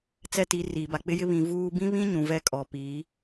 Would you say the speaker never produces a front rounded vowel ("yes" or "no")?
yes